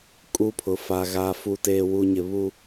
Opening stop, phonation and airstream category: ejective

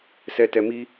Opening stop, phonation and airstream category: plain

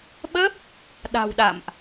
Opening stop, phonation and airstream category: implosive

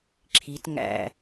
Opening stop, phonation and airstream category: click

